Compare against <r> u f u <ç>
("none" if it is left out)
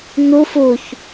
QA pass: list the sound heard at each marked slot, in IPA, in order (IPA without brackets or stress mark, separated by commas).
n, ç